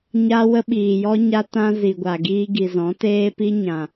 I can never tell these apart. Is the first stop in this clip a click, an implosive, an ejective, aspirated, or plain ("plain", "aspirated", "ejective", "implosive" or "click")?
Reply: implosive